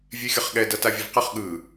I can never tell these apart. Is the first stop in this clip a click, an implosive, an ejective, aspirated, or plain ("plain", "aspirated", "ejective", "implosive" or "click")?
implosive